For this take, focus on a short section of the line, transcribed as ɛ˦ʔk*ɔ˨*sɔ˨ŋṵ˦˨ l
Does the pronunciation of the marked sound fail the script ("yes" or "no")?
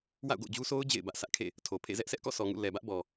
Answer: yes